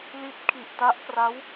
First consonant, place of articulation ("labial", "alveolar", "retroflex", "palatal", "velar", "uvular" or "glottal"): alveolar